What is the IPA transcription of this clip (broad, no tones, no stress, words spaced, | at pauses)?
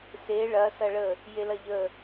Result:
se ɭɐ sɐɭə | jelɐʎə